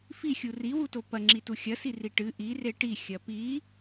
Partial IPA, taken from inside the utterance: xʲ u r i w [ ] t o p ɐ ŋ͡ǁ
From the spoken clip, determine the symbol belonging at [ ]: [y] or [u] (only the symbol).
u